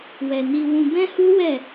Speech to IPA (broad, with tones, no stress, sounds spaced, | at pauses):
w ɛ˨ n i˧ w ũ˧ b ɛ̃˦ h u˦ w ɛ˦˨